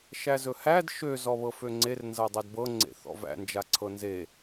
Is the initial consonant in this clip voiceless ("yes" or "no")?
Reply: yes